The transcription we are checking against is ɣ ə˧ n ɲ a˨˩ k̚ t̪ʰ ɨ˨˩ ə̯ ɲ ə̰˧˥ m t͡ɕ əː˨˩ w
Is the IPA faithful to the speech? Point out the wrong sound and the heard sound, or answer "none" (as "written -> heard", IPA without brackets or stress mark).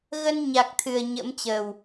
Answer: none